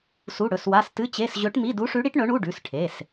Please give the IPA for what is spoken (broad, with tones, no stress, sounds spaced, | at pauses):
s u˧˥˧ ɽ ɵ˩˧˩ s w a˧˥˧ s t ɨ˧˥˧ t͡ɕ e˧˥˧ s ʑ ɵ˧˥ ʈ m i˧˥˧ d u˧˥ ʂ ʉ˧˥ ɽ i˧˥ ʈ ɳ ɵ˧˥ ɳ u˧˥˧ ɖ ʉ˩˧˩ s ʈʰ e˩˧˩ s